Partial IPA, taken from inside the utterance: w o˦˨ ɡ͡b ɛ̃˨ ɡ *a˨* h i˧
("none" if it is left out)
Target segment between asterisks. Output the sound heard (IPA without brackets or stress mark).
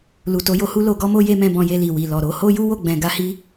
a˧